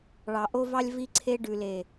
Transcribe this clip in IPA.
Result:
ɭ ɑ˨ ʔ o˦ v ɑ˦ lʲ v i˦ ǀʰ e˦ ɖ ʉ˨ l e˨

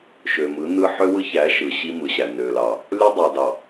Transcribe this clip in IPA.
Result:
ʃ ø˨ m ɯ˨˦ n ɯ˦ ħ ø˦ w ɯ˦ ç æ˨˦ ʃ ɯ˨ ɕ i˦ m ɯ˨ ɕ æ˨ n ø˨ l ɑ˨ | l y˦ dˤ æ˨ d ɑ˨

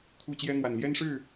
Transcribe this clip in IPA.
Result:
kʰ u˥˩ t͡ɕ j ɛ˥ n̪ w a˨˩ n l j ɛ˥ n ʂ ɻ̩˥˩

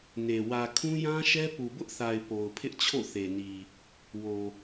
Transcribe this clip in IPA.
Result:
n e˨ w ä˨ kʰ ũ˦ j ã˦ ʃ ɛ˦ p u˨ b ʊ˦ ʔ θ a˨ ɪ̯ p o˨ ʊ̯ pʰ ɪ˦ ʔ t͡ɕʰ o̰˦˨ θ e˨ n i˨ | w o˨

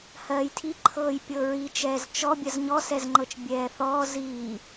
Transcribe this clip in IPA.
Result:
h ɜː j tʰ i ǃʰ ɤː j pʲ ɤ ɹ i t͡ʃ ɛː z t͡ʃ ɔ bʲ ɜ z ɲ ɔ s ɛ z ŋ͡ǃ ɤ t͡ʃ bʲ ɛː θ ɔː z iː

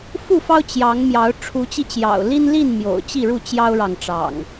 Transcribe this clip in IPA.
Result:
f u˥˨ f ɑ˦ ʊ̯ t͡ɕ j ɑ˨˦ ŋ m j ɑ˨˦ ʊ̯ ʈ͡ʂʰ u˨˦ t͡ɕ i˧ t͡ɕ j ɑ̰˨˩ ʊ̯ l i˦ n l i˥˨ n m j o̰˨˩ ʊ̯ t͡ɕ i˥˨ ɻ u˥˨ t͡ɕ j ɑ˦ ʊ̯ ɻ ɑ˨ ŋ ʈ͡ʂ ɑ̰˨˩ ŋ

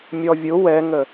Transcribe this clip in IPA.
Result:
mʲ ɔ vʲ ʊ w ɛ ŋ ə

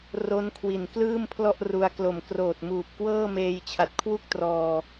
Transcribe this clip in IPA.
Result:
r o˦˥ n kʰ w i˨˩ n k l ɯː˥˩ m pʰ l ɔ˥˩ ʔ r u˧ a̯ k l o˨˩ m k r oː˨˩ t̚ m uː˨˩ p̚ k w ɤː˥˩ m eː˧ j t͡ɕʰ a˨˩ t̚ kʰ w u˥˩ k̚ t r ɔː˧

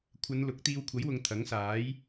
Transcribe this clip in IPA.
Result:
kʷʰ ɐ˨˧ n l ʊ˨˥ k̚ t̪ iː˧ w kʷʰ ɐ˨˥ j w ʊ˨ ŋ t̪ʰ ɐ˨˥ ŋ s aː˨˥ j

